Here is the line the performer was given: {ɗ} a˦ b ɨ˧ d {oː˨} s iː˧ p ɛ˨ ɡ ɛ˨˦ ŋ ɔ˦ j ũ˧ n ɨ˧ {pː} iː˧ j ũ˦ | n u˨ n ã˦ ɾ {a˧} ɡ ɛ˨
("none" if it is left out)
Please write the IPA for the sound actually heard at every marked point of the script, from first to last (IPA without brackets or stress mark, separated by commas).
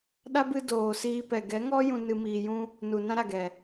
ɗ, oː˨, m, a˨